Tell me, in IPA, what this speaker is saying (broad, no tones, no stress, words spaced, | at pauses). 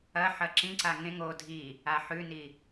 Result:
ɐħɐ ǁĩǀa ŋẽ ŋo dʱi | aħʉni